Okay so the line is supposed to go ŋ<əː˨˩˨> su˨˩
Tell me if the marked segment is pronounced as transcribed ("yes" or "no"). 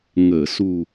yes